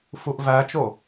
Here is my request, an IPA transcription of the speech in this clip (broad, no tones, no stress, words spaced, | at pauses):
fuʔvæt͡ʃo